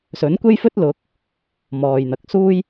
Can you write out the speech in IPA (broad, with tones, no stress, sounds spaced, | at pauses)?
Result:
s ɵ˨˥ n kʷ e˥ j f ɵ˥ t̚ l ʊ˨˥ k̚ | m ɔː˨ j n̪ ɐ˨ k̚ s uː˥ j